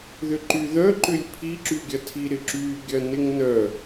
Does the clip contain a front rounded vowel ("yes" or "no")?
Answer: yes